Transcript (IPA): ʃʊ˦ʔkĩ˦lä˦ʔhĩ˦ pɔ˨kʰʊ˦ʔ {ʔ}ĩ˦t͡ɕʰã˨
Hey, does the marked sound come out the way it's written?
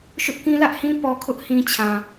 no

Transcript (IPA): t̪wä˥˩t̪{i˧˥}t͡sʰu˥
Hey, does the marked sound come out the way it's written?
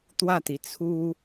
no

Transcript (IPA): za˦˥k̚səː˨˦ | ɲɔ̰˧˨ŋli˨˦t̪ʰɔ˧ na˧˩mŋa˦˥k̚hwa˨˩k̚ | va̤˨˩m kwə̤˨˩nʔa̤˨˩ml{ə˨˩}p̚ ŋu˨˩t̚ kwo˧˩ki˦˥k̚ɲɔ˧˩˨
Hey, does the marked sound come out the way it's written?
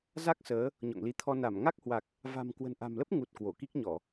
no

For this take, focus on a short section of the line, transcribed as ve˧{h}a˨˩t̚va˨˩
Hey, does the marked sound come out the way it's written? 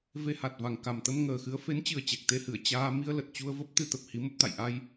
yes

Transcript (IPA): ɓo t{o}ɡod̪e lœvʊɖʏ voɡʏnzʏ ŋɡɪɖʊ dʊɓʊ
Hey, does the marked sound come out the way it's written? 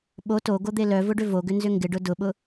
yes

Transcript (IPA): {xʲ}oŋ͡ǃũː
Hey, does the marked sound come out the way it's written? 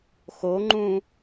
no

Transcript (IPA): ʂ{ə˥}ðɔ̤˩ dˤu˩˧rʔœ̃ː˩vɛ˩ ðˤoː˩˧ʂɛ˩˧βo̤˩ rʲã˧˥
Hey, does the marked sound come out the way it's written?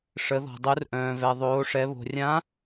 no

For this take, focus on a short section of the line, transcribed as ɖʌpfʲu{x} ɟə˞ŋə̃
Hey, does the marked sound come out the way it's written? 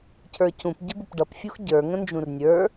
yes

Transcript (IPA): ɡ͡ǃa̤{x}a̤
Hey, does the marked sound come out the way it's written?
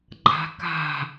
no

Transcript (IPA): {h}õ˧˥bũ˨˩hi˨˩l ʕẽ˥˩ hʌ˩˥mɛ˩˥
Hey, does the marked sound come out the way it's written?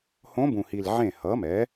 yes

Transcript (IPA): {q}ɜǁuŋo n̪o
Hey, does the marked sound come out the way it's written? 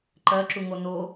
no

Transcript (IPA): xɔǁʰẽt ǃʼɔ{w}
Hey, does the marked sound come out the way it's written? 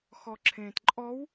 yes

